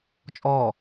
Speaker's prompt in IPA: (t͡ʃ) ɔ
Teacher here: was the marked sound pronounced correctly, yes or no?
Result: no